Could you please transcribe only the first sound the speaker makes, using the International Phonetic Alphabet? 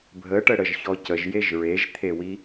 bʱ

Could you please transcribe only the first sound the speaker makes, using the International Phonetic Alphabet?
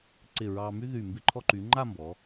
ǀ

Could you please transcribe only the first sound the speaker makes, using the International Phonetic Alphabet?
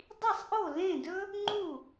dˤ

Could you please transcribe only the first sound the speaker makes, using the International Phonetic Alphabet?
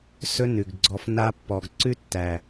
s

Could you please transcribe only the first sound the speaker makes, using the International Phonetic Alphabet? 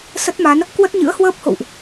s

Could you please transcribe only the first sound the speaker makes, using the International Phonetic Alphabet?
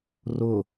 r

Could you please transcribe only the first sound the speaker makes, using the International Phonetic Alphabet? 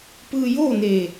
p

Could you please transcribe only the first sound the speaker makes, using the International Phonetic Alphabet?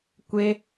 kʷ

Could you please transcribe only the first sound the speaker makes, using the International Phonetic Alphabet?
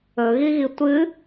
ɵ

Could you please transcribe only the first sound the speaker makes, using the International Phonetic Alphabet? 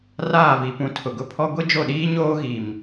r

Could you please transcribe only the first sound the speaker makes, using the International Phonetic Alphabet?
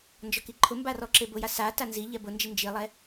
n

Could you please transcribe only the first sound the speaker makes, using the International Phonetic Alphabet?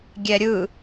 ɡʲ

